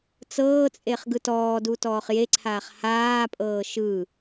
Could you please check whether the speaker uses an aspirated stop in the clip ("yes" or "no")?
yes